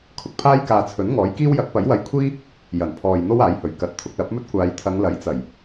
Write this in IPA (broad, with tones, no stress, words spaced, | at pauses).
kʰʊ˨k̚pʰaː˥jkaː˧t͡sʰɵ˨˥n ŋɔː˨˥jkiː˥w jɐ˨˥k̚pɐ˨˥jwɐ˧jkʷʰiː˥ | jɐ˨˩npʰɔː˨j n̪o˥waː˨˥jhɵ˨˩ɥ kɐ˨˥t̚t̪ʰʊ˧k̚lɐ˨˥p̚mɵ˥t̚ kʷaː˨˧jt̪ʰɐ˨˧ŋlɐ˨˥jt͡sɐ˨˩j